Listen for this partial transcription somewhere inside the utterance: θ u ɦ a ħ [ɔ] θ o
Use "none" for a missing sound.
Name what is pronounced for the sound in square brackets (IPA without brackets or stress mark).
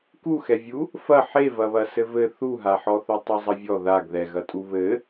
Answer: ɔ